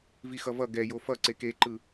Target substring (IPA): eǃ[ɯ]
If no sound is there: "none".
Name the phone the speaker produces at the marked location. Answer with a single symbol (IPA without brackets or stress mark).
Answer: ɯ